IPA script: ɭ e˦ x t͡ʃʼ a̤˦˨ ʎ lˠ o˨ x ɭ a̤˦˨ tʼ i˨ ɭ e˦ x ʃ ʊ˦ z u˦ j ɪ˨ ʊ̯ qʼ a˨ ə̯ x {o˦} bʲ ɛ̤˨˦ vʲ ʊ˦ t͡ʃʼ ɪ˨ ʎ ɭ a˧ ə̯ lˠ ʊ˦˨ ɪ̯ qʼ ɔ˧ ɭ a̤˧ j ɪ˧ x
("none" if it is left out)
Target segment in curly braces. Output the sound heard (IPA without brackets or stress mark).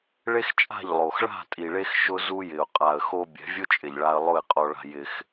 o˧